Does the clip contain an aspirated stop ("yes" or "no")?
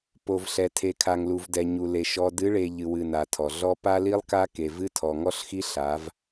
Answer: yes